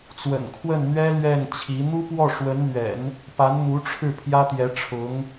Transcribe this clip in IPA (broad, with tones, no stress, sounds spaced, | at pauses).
t͡s w ə̰˨˩ n kʰ w ə˥˩ n n̪ ɥ ɛ˥ l ɥ ɛ˥˩ n t͡ɕʰ i˧˥ n̪ u˥ p w ɔ˥˩ ʂ w ə˧˥ n n̪ ɥ ɛ̰˨˩˦ n | p a˧˥ n n̪ u˧˥ ʈ͡ʂʰ ɻ̩˥˩ pʰ j ä˥ t̪ j ɛ˧˥ ʈ͡ʂʰ ʊ˧˥ ŋ